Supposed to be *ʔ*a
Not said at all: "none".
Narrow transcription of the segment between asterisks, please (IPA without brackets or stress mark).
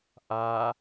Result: ʔ